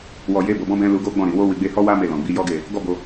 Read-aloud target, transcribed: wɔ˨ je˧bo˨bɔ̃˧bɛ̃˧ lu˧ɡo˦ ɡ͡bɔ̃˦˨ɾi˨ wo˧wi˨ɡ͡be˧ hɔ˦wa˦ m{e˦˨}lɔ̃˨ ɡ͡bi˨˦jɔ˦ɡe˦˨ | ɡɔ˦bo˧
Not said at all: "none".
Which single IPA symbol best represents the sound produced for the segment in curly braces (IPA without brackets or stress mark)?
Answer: e˦˨